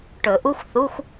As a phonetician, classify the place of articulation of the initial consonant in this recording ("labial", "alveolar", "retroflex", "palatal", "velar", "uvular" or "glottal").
retroflex